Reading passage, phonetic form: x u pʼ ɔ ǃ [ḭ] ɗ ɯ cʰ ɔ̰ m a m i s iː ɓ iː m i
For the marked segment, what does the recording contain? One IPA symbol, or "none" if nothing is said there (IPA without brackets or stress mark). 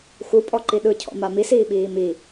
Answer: i